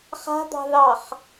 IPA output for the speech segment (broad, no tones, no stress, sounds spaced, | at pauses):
χ a̤ d̪ ɑ̤ ð ɑ χ